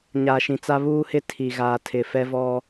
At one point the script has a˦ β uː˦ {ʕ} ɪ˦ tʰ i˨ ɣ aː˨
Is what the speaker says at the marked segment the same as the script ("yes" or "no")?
no